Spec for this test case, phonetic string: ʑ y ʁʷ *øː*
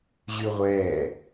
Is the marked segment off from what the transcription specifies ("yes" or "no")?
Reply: yes